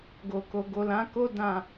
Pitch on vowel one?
low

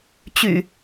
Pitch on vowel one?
low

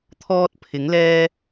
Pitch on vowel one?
high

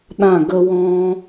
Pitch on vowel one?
falling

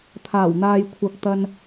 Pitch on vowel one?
low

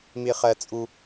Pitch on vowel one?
high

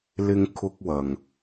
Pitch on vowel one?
high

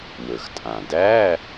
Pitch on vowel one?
low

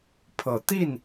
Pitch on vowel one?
rising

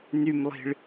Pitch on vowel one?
low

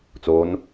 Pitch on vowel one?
rising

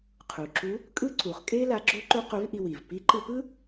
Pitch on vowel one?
low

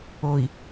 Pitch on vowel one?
low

